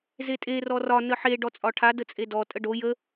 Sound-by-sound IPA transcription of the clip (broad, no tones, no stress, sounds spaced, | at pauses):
z e tʼ e r ɔ r ɒ n ə ħ e ɖ ɔ t͡sʼ ɒ ʈʰ a d ə t͡sʼ e d ɔ tʼ ə ɖ o j ə